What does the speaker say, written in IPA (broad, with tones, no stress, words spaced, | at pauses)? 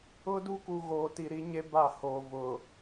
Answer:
ʊ˦du˦ku˨ ɣoː˨ti˨ɾi˦ɲe˦ ba˦˨hoː˨ vʊ˨